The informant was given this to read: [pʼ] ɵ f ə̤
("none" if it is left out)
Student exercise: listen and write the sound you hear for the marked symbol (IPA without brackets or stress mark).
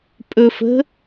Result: pʼ